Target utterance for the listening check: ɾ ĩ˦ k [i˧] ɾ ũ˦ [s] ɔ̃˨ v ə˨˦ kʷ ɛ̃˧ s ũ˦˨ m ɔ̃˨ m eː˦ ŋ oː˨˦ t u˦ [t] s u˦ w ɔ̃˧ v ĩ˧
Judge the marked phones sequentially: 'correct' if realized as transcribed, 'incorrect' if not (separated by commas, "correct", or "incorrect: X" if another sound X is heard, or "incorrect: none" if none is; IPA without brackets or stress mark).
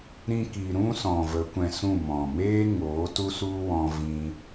correct, correct, incorrect: none